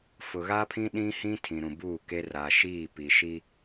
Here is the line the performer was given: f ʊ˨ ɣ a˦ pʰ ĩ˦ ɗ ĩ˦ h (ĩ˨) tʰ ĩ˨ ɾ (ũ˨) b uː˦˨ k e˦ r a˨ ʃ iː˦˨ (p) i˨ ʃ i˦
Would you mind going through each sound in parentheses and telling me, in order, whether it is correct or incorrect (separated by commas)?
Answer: incorrect, correct, correct